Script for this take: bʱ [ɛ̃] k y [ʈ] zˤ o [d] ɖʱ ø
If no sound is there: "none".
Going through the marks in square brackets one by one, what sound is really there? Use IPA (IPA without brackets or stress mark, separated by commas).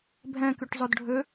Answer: ɛ̃, ʈ, d